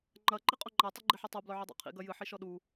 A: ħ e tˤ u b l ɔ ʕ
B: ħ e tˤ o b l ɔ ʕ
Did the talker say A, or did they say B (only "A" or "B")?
B